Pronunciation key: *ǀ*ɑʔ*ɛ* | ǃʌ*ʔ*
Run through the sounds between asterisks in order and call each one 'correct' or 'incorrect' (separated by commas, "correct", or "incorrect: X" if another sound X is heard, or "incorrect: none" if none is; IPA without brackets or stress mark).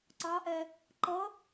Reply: correct, correct, incorrect: none